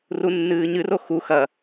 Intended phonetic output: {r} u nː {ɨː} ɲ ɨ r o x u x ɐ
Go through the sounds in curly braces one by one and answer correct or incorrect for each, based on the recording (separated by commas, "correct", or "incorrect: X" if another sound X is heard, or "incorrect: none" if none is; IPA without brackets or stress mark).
correct, correct